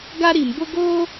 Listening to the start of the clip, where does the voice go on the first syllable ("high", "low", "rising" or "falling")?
high